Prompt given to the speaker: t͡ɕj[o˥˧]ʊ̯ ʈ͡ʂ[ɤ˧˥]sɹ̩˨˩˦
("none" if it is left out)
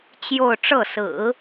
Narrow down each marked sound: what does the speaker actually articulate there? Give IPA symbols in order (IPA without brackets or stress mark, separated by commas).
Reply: o˥˧, ɤ˥˩